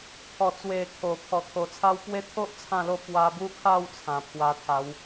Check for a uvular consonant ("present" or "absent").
absent